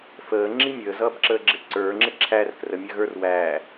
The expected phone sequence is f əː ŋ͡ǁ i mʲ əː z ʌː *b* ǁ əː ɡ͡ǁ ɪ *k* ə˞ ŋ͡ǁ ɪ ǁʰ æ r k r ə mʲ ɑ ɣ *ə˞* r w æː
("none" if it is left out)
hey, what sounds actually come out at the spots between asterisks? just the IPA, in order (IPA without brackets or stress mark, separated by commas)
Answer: b, ǀ, ə˞